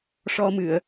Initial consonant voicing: voiceless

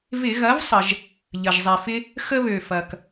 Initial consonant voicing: voiced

